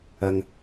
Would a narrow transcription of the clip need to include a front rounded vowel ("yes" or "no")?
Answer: no